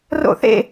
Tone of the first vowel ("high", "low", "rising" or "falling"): falling